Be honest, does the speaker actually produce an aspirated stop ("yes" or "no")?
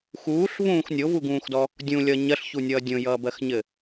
no